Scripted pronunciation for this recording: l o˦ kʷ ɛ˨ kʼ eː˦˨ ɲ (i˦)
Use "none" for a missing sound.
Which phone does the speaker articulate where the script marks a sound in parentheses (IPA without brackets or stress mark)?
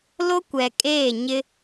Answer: ɪ˦